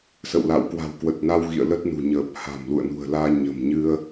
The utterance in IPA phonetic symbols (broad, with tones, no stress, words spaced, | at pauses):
sə̰˧˨wla̰˧˨w kwa̤˨˩wkwə˨˩t̚na˧w ɣḭ˧˨ə̯lə˦˥t̚nṳ˨˩ɲəː˨˩p̚ ha̤˨˩mlṵ˧˨ə̯nṳ˨˩ə̯laː˧ ɲə̤˨˩mɲɨ˧ə̯